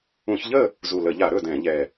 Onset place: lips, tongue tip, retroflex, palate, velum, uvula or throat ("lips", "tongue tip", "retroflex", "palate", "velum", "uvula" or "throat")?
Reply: palate